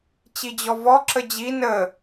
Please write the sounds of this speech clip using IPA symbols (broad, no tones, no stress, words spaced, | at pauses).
t͡ɕid͡ʑɔvɔ ǁəd͡ʑi nə